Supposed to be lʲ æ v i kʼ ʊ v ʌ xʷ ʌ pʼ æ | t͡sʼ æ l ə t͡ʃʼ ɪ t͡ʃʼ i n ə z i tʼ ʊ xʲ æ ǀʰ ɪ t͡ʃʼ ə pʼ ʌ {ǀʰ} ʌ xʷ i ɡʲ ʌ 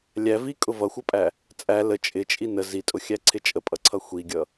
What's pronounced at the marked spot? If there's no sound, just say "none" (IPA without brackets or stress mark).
ǀʰ